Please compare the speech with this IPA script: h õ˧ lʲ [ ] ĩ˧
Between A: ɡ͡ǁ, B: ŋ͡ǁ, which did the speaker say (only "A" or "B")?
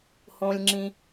B